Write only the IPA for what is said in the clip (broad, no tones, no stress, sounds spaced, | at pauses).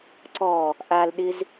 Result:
ǀ ɔ | ʔ a l ɗ ɪ z